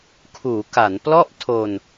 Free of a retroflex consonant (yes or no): yes